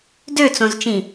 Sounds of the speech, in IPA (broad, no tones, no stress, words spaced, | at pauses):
døt͡sõzt͡ʃĩ